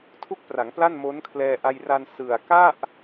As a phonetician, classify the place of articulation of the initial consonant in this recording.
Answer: alveolar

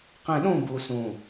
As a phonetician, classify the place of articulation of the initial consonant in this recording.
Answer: uvular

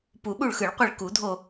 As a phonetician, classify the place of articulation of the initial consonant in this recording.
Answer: labial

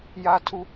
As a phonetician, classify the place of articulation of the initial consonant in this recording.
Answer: palatal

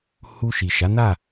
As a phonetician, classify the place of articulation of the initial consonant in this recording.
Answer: glottal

